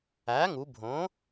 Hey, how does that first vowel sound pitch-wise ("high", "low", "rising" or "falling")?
rising